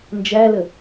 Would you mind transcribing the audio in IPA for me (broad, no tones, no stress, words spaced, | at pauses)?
nd͡ʒælə